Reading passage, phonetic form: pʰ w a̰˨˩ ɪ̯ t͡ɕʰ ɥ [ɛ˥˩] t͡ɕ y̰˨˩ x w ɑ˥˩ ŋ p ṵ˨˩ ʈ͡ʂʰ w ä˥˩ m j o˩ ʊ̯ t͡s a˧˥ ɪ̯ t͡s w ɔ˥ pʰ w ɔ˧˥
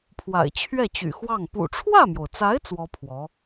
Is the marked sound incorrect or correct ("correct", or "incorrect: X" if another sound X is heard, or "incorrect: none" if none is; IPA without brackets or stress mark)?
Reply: correct